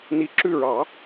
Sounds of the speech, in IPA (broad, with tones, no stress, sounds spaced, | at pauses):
n i˨˩ ǁ ʉ˦˨ ɹ ɑ˨˩˦